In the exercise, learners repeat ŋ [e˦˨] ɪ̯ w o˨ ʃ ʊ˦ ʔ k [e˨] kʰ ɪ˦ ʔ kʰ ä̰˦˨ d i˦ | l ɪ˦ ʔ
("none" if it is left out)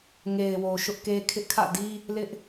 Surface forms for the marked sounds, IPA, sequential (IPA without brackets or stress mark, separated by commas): e˨, e˦